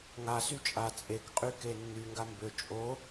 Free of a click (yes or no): yes